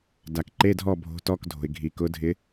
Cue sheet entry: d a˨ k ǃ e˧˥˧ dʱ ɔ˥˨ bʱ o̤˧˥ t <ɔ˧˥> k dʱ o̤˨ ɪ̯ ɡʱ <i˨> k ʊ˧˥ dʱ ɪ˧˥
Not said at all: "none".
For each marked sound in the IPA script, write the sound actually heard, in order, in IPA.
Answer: ɔ˧˥˧, i˨

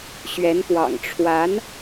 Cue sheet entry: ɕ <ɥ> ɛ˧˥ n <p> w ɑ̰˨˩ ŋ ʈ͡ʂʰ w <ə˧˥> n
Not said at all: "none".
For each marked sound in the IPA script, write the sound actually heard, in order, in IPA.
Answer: ɥ, p, a˧˥

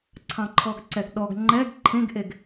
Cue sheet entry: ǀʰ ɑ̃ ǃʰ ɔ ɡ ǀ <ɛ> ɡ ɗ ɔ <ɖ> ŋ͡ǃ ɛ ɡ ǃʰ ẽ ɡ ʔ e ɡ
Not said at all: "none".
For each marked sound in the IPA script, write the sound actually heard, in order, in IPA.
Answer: ɛ, ɡ

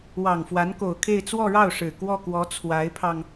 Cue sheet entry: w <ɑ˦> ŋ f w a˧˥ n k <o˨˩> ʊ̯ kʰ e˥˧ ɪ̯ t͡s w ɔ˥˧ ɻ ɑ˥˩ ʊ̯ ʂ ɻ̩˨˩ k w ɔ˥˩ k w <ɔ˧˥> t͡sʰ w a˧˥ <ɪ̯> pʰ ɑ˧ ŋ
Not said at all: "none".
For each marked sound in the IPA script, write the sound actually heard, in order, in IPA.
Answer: ɑ˨˩, o˨˩, ɔ˧˥, ɪ̯

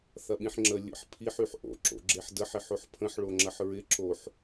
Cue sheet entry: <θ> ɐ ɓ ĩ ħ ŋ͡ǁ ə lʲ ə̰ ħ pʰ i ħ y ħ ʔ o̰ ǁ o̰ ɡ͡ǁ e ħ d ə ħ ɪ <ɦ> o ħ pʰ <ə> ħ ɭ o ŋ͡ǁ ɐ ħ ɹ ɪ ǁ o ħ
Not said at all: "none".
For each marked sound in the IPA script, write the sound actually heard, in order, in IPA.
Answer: θ, ħ, ə̃

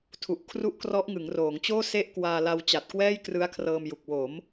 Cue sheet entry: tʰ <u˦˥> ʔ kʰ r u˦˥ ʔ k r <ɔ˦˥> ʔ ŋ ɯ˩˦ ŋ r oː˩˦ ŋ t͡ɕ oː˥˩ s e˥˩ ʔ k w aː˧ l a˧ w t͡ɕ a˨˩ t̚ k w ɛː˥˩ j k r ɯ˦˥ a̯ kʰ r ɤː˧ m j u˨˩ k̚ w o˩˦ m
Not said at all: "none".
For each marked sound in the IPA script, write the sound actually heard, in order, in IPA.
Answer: u˨˩, ɔ˦˥

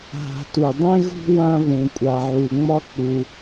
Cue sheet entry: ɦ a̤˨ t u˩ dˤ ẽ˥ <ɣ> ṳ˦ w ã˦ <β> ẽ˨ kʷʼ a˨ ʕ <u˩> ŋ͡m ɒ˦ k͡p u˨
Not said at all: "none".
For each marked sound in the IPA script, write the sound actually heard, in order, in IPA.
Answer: ɣ, β, u˨

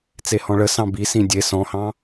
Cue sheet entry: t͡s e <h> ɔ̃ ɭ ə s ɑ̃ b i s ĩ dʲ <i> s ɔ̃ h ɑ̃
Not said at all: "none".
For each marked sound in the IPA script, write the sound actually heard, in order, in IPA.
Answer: h, e

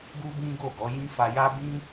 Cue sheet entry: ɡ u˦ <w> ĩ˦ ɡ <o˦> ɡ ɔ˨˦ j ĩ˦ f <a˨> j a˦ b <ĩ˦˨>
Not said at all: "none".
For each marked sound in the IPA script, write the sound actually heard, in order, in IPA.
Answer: b, o˦˨, a˧, ĩ˦

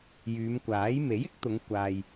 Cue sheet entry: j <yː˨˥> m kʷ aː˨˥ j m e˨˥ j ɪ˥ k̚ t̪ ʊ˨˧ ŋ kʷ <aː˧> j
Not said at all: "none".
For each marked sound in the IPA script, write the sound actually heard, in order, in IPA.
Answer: yː˨˧, aː˧

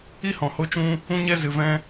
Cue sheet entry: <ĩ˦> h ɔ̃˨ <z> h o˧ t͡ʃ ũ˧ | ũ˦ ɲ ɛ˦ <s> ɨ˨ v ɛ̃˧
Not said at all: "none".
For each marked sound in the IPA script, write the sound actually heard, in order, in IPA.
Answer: i˦, none, z

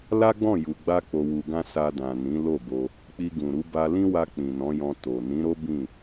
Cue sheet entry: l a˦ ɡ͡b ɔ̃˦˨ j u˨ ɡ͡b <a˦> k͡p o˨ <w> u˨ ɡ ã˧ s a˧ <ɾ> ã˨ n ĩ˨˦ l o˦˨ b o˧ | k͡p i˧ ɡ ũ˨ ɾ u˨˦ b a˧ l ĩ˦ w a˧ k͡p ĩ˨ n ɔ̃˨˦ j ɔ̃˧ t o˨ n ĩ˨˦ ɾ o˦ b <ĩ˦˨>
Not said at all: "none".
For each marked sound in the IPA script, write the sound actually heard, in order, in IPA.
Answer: a˧, w, d, ĩ˦˨

